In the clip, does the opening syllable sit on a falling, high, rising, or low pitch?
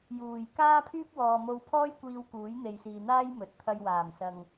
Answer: low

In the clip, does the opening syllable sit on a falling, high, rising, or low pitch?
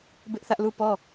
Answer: high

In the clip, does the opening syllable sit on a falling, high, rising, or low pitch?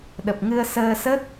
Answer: low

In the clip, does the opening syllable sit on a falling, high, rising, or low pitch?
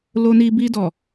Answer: high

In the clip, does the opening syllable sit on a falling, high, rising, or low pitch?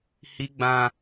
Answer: high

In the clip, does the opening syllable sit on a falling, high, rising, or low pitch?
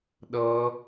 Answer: high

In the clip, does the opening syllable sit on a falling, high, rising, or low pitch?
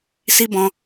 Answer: high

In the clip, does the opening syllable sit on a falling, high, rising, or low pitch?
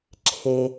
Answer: low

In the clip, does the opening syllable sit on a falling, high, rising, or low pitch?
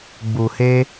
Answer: low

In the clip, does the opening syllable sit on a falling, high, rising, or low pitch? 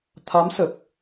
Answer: rising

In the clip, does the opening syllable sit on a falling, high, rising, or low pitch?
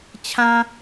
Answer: high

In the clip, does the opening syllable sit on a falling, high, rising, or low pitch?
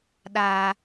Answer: high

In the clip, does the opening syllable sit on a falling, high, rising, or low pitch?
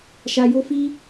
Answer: low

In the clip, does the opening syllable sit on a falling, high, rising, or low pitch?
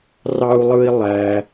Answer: high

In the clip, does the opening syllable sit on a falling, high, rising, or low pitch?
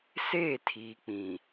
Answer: falling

